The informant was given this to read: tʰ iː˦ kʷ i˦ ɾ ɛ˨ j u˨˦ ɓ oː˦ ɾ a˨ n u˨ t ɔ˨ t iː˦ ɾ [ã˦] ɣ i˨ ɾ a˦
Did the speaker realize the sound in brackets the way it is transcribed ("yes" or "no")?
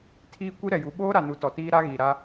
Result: no